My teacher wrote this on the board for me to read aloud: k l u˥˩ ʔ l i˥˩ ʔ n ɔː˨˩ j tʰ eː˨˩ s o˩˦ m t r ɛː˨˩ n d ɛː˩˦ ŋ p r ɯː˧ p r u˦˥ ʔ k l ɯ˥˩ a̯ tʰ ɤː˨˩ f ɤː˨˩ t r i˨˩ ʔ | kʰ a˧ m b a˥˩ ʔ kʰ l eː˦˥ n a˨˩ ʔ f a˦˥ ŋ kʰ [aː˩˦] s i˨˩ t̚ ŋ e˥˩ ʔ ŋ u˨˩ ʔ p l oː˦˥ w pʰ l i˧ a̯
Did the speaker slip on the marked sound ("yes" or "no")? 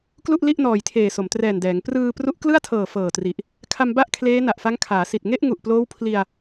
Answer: no